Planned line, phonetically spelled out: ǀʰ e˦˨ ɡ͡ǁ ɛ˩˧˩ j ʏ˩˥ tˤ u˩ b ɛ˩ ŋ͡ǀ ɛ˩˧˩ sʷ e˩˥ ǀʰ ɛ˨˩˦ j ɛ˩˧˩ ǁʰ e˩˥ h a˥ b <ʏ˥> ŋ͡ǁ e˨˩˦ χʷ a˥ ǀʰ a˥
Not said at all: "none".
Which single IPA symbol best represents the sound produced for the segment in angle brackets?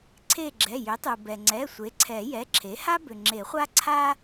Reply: ʏ˩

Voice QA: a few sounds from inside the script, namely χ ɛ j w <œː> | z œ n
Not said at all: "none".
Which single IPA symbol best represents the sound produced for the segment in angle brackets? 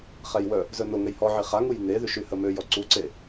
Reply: œ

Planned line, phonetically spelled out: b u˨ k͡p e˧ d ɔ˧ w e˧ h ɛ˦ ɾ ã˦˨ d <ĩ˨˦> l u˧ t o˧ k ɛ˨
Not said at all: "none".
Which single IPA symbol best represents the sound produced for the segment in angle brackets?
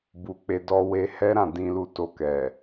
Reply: ĩ˧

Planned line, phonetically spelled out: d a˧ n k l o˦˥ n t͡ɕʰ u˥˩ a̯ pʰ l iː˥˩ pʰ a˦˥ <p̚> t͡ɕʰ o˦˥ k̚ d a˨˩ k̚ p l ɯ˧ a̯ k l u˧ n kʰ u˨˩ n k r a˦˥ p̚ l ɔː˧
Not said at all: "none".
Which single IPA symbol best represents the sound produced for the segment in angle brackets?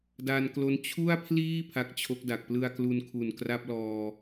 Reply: k̚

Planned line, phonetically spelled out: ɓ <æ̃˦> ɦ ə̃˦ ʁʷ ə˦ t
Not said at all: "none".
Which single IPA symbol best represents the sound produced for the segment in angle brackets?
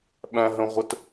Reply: æ̃˦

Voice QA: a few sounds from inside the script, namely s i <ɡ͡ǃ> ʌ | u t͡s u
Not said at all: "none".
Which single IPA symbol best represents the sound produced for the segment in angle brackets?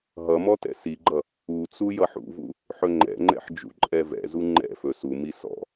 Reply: ɡ͡ǃ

